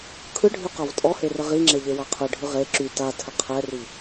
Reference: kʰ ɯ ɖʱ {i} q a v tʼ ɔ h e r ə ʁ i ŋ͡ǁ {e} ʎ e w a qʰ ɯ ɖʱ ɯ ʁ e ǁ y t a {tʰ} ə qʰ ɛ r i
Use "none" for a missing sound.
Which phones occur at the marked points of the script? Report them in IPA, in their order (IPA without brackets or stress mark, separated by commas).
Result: y, e, tʰ